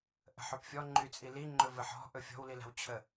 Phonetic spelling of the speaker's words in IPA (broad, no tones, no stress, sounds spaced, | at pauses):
ʔ ə̤ ħ ɵ p fʲ ɔ ŋ͡ǃ y t͡sʼ i l i ŋ͡ǃ ɵ v ɘ ħ ɔ̤ ʔ ɵ fʲ ɔ̤ w l i l a̤ w t͡ɕʰ ə